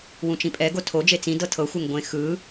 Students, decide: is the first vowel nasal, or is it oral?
nasal